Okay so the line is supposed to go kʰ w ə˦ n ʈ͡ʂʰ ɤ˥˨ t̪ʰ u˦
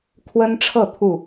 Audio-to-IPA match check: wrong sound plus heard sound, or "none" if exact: u˦ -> u˥˨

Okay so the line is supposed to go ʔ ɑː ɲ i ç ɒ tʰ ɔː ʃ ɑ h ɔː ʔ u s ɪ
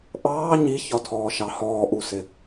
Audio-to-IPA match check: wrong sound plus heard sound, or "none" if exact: none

